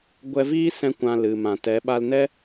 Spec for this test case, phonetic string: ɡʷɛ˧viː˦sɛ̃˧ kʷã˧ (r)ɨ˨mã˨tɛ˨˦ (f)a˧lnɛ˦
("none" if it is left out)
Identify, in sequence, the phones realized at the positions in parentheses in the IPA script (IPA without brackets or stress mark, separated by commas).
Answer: l, ɓ